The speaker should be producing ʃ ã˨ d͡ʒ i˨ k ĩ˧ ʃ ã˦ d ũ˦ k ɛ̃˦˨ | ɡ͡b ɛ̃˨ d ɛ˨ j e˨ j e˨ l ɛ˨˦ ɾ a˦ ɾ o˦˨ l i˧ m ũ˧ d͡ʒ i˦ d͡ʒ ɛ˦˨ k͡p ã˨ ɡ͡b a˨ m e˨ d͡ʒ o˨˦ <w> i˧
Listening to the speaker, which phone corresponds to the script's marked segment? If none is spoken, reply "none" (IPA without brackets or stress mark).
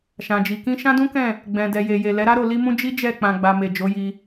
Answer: j